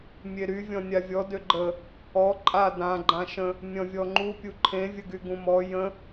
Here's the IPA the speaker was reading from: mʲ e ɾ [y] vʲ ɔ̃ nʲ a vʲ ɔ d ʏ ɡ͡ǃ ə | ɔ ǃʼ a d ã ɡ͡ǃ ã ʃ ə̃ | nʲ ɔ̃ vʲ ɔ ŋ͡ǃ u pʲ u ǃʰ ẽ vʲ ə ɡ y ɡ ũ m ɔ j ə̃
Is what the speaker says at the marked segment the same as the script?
yes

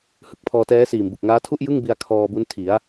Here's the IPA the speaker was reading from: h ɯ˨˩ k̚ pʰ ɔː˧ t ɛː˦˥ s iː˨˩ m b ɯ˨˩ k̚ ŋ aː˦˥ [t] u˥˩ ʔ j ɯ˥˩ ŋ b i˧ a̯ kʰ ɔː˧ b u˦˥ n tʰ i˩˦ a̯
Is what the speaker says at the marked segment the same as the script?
no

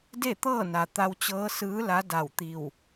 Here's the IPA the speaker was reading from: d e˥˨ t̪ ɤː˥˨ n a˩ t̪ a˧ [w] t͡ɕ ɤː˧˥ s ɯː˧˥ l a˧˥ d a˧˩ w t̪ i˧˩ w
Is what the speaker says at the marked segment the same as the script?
yes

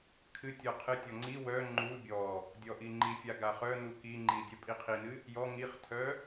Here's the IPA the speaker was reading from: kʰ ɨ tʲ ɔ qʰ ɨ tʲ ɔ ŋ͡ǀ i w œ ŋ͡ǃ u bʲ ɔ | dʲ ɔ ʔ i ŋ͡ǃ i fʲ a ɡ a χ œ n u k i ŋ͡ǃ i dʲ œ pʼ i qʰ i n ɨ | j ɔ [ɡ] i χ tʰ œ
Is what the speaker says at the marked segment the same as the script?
no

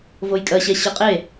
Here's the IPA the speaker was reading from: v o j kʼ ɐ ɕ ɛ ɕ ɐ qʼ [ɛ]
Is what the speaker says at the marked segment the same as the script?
no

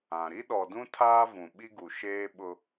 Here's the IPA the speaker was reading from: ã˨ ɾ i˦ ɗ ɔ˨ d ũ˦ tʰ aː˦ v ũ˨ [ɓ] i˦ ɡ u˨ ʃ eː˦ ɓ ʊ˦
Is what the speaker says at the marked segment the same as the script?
yes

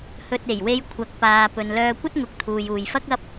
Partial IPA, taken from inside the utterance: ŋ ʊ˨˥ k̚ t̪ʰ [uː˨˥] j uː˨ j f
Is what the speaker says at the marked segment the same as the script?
no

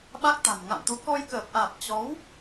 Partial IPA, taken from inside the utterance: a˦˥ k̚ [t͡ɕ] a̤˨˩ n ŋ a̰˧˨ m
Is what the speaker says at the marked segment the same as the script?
no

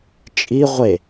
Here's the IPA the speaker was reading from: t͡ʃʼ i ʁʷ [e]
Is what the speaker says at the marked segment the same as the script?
yes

